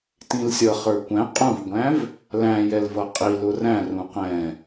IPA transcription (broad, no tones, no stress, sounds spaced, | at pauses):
t ĩ l sʲ ʌ χ ə˞ kʷ æ̃ qʼ ũ v ɡʷ æ̃ v | l æ̃ j ɛ l v ʌ qʼ i l ʊ r æ̃ r ũ q ɛ̃